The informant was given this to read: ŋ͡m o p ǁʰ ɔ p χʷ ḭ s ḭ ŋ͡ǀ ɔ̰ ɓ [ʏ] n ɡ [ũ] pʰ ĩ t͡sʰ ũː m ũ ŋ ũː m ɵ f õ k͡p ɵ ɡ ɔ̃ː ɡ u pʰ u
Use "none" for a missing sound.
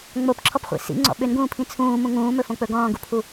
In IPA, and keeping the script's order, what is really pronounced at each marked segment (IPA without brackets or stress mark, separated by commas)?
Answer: ʏ, ũː